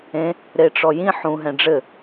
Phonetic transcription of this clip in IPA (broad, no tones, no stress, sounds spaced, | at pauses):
ẽ | ɾ e ʈ͡ʂ ɔ j ĩ ħ ũ ɦ ɛ̃ ɖ͡ʐ ɘ